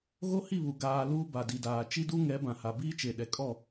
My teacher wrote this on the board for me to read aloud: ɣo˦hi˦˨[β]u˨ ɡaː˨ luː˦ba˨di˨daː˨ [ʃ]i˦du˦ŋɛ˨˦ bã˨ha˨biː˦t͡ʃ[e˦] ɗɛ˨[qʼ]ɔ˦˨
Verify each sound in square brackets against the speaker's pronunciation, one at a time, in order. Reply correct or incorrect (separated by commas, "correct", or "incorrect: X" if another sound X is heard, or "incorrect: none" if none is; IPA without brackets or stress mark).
correct, incorrect: t͡ʃ, incorrect: e˨, incorrect: kʼ